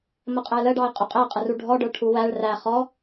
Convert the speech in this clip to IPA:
məqʼæləɖɑɪ̯ qʼʊqʼæqʼəru ɖʱɔɖə˞ʈʰu wæɭ ræ χɔ

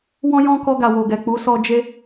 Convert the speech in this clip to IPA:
wɔ̃˦jɔ̃˦ kɔ˧ɡa˨ wo˨ɡɛ˨k͡pu˨˦sɔ˧ d͡ʒe˧

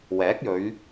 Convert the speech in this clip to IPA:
wɛː˨˥k̚jɵ˨˧ɥ

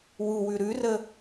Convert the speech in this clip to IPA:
wuwʉ ɾʉrə

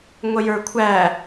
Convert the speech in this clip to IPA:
ŋʷəjə˞kʷʰæ

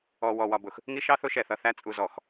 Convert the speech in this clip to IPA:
ɔ˨wɔ˨wɒ˨bʊ˨x | ŋi˦ʃɑ˦ θʊ˦ʃɛ˨ θʌ˨θæ˦ t͡sʼu˨zɔ˨x

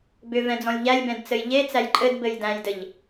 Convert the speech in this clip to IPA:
bʏ vɛ̃d͡zɔ̃lʲʎælʲbɛ̃d t͡sɘjʎet͡sæj ǃʼɘd bɘjdæ̃jdɘʎ

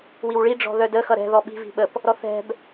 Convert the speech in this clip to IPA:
wiwɭi ɖ͡ʐɔ̤ðœdə xʌɾɛ̤ ðɔɓi̤ vi̤ɓəp | ɾɔθɛ̤b

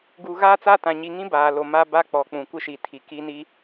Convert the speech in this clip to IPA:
ɡuː˨ɣaː˦t͡sa˦tã˨ ɲi˨ŋĩ˦ baː˨lo˨ma˦ ba˦k͡pɔ˨k͡pũ˨ kʷɪ˦ʃi˨tʰi˨ ki˦ni˦

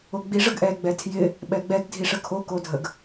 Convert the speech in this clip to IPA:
oɡ͡bi ʐəɡʔɛ ɡ͡bɛtʰjɪ | ɓɛɡ͡bɛɡ dʱiʂəkʰo kodʱəɡ

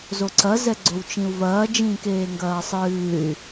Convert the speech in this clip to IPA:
zoǀɐ zɛɡ͡ǀowt͡ʃĩu̯vɐː d͡ʒĩːkeːŋɡɐːsˤɨːy̯

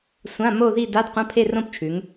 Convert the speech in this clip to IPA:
sʷã˧˥˧mo˥˧ði˥˧ da˧˥˧dqʷɐ̃˧˥˧pʰe˥˧ rõ˥˧pt͡ʃʰʉ˨˦ŋ

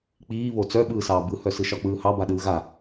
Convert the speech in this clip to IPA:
k͡piːβo t͡sœɓɯːsɑː bɯhœ sɯʃɒk͡pɯːhɑ baɗɯːɣa

